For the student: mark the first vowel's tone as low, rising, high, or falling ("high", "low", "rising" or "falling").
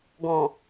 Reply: low